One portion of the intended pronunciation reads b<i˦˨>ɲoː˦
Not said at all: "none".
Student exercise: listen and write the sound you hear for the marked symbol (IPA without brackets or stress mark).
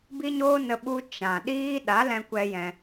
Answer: i˦